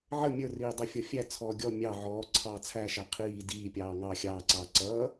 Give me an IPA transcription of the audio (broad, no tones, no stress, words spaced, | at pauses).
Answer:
ʕə mʲə˞riː dˤɛfʲɔfʲæt͡sʰɔː ɡʲɔ mʲɑ ʕɔː ǀʰɑːt͡sʰæʃæ qʰiː diːpʲɑː ŋɑ xʲɑːǀɑː ǀʌː